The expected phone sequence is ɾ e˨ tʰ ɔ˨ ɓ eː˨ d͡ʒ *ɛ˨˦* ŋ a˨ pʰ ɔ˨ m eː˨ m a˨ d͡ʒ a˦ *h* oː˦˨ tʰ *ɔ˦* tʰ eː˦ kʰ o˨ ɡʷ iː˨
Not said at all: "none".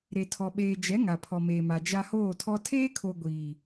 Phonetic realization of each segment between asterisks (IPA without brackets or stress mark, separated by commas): ɛ˨˦, h, ɔ˦